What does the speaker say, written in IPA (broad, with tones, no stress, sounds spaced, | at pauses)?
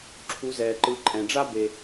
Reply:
ǁʰ u˩˧ z ɛː˩ ǃ ɯ˩˧ ǃʼ ɛ̃˩ ɖ͡ʐ a˥ b e˩